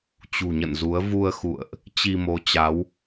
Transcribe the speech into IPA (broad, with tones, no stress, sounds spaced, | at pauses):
t͡ɕ ṳ˨˩ ɲ ə̰˧˨ n z u˨˦ ə̯ v u˧ ə̯ x ṵ˧˨ ə̯ ʔ | t͡ɕ i˧ m o˨˦ t͡ɕ a˨˦ w